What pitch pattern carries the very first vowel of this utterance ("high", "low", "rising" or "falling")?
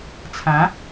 rising